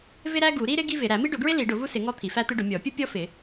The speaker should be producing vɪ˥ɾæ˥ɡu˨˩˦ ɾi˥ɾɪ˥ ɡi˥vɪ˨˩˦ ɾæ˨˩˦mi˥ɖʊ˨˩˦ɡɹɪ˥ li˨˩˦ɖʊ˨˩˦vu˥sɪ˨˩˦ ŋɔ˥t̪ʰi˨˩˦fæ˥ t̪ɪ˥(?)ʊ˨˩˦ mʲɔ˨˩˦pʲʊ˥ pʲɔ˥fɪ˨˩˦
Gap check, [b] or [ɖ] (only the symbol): ɖ